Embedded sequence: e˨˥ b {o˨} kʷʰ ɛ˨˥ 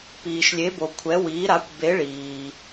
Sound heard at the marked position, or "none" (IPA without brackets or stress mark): o˨